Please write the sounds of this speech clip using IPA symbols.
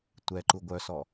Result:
tʷ ɛ ǃ u ɡʷ œ s ɔ

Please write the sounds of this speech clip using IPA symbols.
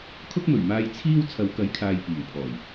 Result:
kʰ ʊ˥ k̚ m ɵ˨˩ ɥ m aː˧ j t͡sʰ iː˥ w t͡sʰ ɐ˨˧ w k ɐ˨˥ j kʰ aː˨ j p iː˨˩ w pʰ ɔː˨˩ j

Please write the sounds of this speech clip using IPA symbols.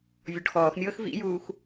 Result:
vʲ ɔ ɖ x ɔː x mʲ ɤː x v ḭ j uː x

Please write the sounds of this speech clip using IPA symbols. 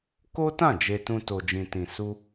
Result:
k o˦ t ã˦˨ d͡ʒ e˧ t ũ˧ t o˧ d͡ʒ ĩ˧ t ĩ˧ s u˦

